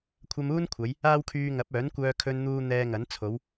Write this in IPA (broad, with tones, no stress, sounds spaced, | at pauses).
kʷʰ ɐ˧ m uː˥ n kʷʰ ɐ˨˧ j | aː˥ w kʰ yː˧ ŋ ɐ˨˥ p̚ œː˨˥ n kʷ œː˧ kʰ ɵ˧ n n̪ uː˧ n̪ ɛː˧ ŋ ɐ˨˥ n t͡sʰ o˨˧ w